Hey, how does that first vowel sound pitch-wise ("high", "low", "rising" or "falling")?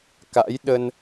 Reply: rising